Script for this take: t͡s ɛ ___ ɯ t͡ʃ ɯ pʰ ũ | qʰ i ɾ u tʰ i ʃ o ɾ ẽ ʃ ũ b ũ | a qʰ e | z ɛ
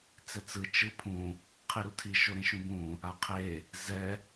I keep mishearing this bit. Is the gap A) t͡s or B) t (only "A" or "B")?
A